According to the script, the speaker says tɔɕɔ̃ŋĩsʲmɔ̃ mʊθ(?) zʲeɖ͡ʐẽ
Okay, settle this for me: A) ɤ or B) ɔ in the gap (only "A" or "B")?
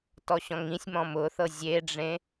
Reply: A